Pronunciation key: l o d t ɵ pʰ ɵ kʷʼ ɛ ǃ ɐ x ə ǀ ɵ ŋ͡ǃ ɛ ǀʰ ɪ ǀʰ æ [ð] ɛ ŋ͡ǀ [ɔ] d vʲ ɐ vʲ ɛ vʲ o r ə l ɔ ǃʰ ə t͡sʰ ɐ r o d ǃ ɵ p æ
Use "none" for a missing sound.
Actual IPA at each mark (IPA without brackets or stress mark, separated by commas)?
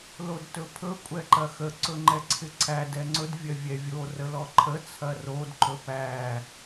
d, ɵ